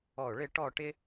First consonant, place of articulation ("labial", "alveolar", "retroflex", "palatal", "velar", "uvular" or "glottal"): retroflex